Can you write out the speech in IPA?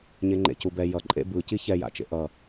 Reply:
ɲ e ŋ͡ǃ ḛ c u b ɛ j ʌ ǃʼ ḛ b ɯ c i ç ɛ j a̰ t͡ʃ ḛ ʔ ʌ

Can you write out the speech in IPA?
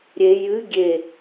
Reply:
ɾʲ e j ɨ ɡʲ e

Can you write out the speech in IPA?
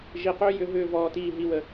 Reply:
ʒ i˨ q ø˦ j ʏ˧ ɦ ʏː˧ v ɔː˨ t iː˨ ɦ i˨ w ə˨

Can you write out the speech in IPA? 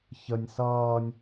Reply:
ç ə nʲ s ʌː nʲ

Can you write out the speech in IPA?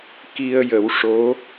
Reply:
k i˧ ə̯ j ə˨˩˦ w ʂ o˧˥

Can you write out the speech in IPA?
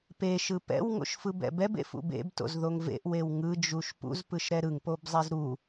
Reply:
p e ʃ ɯ p ɛ̰ w ŋ o̰ ʃ f ɯ b ɛ̰ b ɛ b ḛ f ṵ b ḛ b t o̰ z ð o ŋ v ḛ ʔ w e w ŋ ɯ d͡ʒ u ʃ p ṵ z p ɯ ʃ ɾ ɛ ɾ ɯ ŋ p o b zˤ e z ɾ u

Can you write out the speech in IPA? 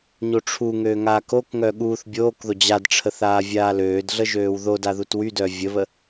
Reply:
ɲ o ʈ͡ʂʰ u ŋ øː ŋ aː k o k ŋ œ ɠ uː θ bʲ oː k ð o d͡ʑ a d ʈ͡ʂʰ ə θ aː vʲ aː l øː d ɮ ə ʒ øː w ð o d a ð u t w y d œ vʲ ə β ə

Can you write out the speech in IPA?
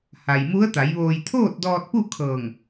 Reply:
h a˩ j m u˧˥ ə̯ t̪ a˩˧ j ʋ oː˧ j t̪ʰ oː˥˨ t̚ d ɔː˧ t̚ p u˥˨ kʰ ɤː˧˩ ŋ

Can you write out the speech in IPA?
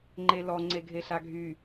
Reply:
ŋ͡ǃ e l ɔ ŋ͡ǀ e ɡʱ e ɬ a ɡʱ y

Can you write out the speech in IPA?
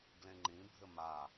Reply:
ɡ l ẽ ŋ͡ǃ ĩ bʱ ɘ m a

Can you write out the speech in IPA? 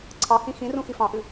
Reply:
ǀʰ ɑ h ĩ x ĩ r ũ x i f ɑ̃ ʔ ɨ

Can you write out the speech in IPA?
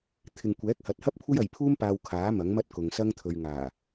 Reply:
t̪ʰ ɪ˨ ŋ kʷ ɛː˨˥ k̚ h ɐ˨ t̚ h ɐ˥ p̚ kʷʰ ɐ˥ j ɐ˨ j pʰ uː˥ m p aː˧ w kʰ aː˨˥ m ɐ˨˥ ŋ m ɐ˥ t̚ k ʊ˨ ŋ s ɐ˥ ŋ t̪ʰ ɵ˨ ɥ ŋ aː˨˩

